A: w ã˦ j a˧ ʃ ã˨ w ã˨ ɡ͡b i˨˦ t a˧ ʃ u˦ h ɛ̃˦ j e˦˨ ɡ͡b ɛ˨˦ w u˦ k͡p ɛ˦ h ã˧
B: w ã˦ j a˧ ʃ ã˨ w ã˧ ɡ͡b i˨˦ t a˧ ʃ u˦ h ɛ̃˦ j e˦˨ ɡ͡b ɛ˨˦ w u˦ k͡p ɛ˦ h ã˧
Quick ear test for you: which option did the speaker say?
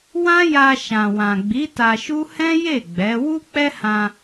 A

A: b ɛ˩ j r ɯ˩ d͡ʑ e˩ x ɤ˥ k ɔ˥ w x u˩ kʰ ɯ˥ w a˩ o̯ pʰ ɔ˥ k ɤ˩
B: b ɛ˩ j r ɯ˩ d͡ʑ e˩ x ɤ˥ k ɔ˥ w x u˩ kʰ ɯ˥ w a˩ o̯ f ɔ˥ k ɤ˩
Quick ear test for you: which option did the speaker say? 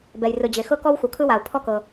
A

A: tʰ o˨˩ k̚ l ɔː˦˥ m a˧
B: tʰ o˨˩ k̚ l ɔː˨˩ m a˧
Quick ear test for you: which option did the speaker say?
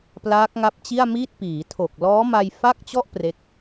A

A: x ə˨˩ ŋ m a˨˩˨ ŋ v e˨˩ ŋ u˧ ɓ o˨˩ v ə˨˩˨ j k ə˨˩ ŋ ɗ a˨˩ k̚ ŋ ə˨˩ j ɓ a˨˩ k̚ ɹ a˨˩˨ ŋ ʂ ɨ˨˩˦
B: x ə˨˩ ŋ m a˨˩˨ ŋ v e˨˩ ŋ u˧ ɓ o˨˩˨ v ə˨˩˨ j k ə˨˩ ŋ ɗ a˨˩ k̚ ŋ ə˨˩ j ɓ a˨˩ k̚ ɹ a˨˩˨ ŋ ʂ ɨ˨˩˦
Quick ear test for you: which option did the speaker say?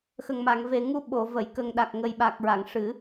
B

